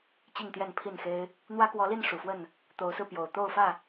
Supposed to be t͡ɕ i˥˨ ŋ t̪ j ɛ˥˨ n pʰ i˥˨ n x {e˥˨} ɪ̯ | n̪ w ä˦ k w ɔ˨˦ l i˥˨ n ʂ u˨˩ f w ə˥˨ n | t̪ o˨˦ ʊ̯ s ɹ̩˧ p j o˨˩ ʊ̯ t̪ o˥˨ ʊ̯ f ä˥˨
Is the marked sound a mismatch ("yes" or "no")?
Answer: yes